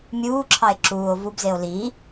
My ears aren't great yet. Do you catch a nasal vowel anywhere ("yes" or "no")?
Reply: no